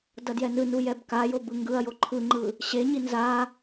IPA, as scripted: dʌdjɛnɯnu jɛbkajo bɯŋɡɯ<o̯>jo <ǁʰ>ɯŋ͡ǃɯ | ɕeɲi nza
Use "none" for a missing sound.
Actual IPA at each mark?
ɐ̯, ǃʰ

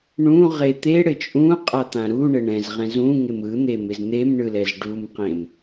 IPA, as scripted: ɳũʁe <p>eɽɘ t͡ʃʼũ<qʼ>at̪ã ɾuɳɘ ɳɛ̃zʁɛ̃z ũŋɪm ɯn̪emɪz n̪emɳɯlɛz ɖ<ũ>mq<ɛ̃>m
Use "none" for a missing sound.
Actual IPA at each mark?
t̪, qʼ, u, ẽ

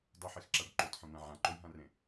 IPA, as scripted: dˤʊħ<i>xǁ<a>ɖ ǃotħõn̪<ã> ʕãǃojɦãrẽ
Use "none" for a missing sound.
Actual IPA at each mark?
e, a, ã

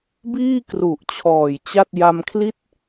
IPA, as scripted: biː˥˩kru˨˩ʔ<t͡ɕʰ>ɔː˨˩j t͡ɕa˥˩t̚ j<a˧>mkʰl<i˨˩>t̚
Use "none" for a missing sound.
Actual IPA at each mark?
t͡ɕʰ, a˧, i˥˩

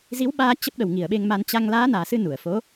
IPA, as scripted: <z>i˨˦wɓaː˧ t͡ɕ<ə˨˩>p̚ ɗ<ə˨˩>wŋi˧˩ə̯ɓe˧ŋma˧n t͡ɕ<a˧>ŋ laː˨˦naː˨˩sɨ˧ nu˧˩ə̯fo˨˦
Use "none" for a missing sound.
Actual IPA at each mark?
z, ə˦˥, ə˨˩, a˧

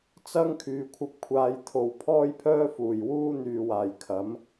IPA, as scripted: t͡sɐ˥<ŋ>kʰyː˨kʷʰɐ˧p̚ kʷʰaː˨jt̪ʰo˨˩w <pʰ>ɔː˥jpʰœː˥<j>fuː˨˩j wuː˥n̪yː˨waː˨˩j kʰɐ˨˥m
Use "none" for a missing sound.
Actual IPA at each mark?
ŋ, pʰ, none

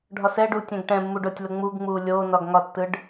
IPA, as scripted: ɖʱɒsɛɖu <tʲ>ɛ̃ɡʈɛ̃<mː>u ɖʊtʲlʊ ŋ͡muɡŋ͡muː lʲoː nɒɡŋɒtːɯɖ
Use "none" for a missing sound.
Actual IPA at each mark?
tʲ, mː

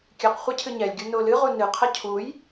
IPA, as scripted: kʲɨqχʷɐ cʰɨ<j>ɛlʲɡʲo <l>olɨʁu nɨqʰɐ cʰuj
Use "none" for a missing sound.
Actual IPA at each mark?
ɲ, n

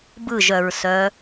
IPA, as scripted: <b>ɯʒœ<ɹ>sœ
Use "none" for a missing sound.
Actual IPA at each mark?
b, ɹ

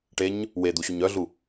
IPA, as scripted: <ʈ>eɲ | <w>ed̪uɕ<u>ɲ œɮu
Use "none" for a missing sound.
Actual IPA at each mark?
ʈ, w, u

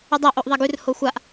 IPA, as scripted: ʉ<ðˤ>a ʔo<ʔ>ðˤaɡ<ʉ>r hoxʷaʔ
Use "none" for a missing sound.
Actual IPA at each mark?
dˤ, ʔ, ʉ

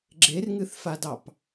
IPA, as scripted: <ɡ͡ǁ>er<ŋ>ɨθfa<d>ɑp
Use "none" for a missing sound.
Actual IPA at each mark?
ɡ͡ǁ, ŋ, d

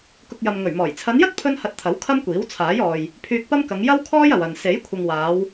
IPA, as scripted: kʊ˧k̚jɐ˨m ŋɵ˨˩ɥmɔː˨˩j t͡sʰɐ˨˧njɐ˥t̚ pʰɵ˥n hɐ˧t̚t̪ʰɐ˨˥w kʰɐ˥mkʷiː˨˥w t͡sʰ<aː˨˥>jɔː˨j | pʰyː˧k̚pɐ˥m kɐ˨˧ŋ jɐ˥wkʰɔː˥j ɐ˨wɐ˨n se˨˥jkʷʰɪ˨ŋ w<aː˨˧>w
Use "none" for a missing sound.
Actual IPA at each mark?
aː˨˥, aː˨˧

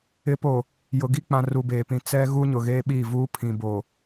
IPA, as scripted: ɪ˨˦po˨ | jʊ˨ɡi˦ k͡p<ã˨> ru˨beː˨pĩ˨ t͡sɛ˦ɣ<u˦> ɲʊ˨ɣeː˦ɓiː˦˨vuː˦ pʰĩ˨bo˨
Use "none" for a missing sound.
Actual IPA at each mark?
ã˨, u˦

